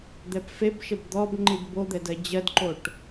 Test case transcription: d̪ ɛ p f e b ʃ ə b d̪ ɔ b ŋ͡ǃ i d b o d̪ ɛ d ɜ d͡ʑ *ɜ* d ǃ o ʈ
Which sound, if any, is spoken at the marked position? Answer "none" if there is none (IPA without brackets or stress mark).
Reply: ɜ